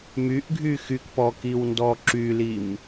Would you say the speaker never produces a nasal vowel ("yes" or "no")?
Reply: yes